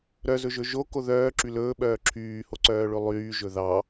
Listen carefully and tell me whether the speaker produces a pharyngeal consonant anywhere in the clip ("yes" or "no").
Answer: no